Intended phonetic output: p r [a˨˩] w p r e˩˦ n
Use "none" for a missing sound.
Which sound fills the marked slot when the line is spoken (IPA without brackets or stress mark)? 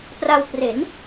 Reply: a˧